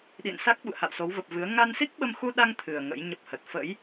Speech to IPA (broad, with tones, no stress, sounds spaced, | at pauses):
ɗ ḭ˧˨ n s a˦˥ k̚ ɓ ṵ˧˨ ə̯ h a̰˧˨ w s o˨˦ w v ə˨˩ p̚ v ɨ˨˦ ə̯ ŋ a˧ n s i˦˥ k̚ ɓ ə˧ m x u˧ ɗ a˧ ŋ t̪ʰ ɨ˨˩ ə̯ ŋ ə̰˧˥ j ɲ ə˦˥ p̚ h ə˨˩ t̚ f ə̰˧˥ j